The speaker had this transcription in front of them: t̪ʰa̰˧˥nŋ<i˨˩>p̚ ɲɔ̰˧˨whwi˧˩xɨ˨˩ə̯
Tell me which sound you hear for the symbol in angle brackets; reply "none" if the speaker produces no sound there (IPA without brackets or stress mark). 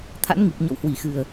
i˨˩